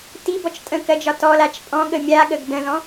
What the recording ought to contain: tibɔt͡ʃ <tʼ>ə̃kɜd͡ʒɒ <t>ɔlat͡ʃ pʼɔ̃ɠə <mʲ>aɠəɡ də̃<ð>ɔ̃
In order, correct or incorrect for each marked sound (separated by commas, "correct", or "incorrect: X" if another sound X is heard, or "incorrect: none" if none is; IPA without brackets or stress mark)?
correct, correct, correct, correct